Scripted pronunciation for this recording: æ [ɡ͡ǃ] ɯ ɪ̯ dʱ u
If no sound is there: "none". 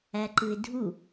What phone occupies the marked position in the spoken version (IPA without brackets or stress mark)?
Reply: ǃ